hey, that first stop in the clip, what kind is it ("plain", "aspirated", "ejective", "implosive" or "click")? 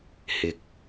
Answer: plain